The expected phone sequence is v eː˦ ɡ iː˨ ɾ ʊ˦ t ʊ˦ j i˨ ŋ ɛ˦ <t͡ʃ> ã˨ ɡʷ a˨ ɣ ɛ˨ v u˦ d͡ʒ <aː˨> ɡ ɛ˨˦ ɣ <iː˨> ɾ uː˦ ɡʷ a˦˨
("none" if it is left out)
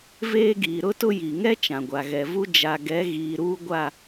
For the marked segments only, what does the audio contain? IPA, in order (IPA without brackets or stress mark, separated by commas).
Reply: t͡ʃ, a˨, iː˨